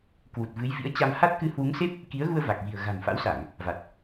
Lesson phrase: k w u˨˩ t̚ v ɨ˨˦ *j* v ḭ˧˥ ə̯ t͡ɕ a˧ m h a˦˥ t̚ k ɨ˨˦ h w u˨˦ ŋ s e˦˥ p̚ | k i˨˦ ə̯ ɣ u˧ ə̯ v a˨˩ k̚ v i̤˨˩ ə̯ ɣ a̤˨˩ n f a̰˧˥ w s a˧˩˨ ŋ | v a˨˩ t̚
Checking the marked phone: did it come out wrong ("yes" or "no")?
no